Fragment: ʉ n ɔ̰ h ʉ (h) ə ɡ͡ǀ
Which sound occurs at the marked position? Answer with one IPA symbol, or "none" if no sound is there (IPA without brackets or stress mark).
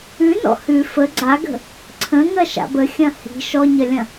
f